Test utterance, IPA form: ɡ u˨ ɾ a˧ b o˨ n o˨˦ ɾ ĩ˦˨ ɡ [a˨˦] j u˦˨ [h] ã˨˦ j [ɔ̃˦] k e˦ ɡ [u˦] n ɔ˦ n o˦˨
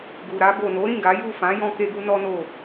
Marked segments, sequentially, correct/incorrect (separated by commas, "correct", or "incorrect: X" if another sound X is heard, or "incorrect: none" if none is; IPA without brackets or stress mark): correct, incorrect: f, correct, correct